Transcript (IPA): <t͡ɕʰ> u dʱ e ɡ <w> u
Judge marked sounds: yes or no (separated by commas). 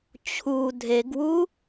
yes, yes